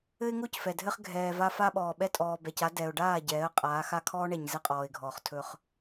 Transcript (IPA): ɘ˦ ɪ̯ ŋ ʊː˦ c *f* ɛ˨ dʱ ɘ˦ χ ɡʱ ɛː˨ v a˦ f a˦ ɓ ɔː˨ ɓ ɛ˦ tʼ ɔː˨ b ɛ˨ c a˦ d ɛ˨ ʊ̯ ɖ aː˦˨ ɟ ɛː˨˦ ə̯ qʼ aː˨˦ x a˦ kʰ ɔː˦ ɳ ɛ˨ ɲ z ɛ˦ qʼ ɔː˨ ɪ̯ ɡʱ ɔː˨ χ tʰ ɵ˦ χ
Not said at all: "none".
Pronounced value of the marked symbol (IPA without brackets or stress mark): f